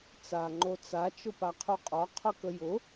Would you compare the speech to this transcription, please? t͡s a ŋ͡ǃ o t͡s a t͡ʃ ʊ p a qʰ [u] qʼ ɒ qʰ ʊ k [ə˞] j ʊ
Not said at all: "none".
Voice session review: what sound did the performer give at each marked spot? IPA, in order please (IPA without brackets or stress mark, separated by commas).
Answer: u, ə